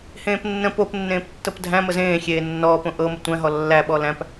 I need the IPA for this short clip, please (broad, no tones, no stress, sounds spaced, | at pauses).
h ẽː p nː ə̃ p o p nː ẽː p tː ɤ p dʱ æ̃ m ə z ẽː xʲ eː nː ɔː p õ ʔ ɤ m ə tʷ æ̃ ɦ ɔ lː æ ɓ ɔ l æ̃ p